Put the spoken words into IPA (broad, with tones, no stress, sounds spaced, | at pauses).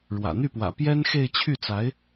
ɻ w ä̰˨˩ n̪ y˥˩ p w ä̰˨˩ p j ɛ˥ n x e˥˧ ɪ̯ t͡ɕʰ y˥˩ t͡s a˧˥ ɪ̯